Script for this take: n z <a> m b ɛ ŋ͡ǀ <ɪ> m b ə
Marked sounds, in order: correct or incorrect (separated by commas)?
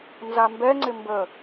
correct, correct